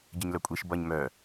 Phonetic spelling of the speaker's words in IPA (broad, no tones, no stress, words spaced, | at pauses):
ɟəɲlœkʷʼiʃ bʌɲ mœ